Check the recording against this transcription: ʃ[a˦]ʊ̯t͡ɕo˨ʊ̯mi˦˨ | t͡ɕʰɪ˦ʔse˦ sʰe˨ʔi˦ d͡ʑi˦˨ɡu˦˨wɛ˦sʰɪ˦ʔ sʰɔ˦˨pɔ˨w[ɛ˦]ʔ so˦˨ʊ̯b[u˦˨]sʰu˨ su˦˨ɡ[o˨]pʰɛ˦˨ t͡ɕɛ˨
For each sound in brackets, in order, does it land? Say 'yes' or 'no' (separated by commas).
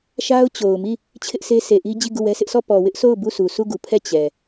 yes, no, yes, no